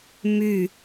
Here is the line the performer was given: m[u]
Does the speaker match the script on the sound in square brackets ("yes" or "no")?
no